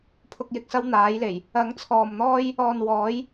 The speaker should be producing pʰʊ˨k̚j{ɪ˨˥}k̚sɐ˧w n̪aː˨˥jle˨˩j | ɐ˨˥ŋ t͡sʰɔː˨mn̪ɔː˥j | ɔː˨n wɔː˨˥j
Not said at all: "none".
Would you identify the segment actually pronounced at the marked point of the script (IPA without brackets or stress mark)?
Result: ɪ˨